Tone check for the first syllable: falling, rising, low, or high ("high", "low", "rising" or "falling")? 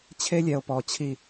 high